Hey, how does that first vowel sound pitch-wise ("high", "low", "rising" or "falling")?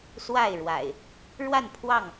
falling